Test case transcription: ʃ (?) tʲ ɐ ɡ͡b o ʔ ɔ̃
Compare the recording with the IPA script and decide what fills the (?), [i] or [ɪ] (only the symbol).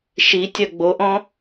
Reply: i